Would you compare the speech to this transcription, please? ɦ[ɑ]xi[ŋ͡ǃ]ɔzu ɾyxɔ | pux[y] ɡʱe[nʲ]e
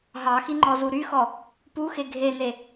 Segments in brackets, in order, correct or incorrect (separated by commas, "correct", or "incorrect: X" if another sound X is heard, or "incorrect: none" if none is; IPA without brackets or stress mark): correct, correct, incorrect: e, incorrect: n